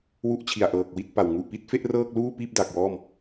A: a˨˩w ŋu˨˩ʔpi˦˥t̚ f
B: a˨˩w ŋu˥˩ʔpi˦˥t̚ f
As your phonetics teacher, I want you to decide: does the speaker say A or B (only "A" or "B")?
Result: A